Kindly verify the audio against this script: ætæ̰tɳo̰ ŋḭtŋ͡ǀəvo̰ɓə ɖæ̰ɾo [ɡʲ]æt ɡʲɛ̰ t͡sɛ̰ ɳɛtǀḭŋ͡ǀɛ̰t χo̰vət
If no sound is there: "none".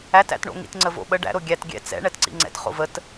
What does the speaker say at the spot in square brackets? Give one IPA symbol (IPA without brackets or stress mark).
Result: ɡʲ